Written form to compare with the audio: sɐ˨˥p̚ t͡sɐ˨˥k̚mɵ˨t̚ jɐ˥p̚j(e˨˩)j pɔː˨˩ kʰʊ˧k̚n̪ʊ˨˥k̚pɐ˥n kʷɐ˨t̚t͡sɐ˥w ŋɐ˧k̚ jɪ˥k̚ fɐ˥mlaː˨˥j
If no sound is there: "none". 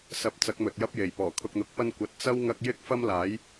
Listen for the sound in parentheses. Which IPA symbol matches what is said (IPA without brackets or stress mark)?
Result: e˨˩